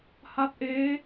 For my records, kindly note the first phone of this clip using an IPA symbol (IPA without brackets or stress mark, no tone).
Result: h